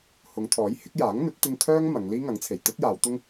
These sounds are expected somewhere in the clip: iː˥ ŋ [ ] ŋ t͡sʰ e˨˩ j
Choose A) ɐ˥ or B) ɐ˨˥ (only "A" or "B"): B